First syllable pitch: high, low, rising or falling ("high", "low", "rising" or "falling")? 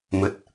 low